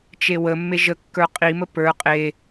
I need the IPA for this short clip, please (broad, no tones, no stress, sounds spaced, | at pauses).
t͡ʃ e w ə mː e ʒ ə kː ə˞ qʼ i m ə p ə˞ qʼ e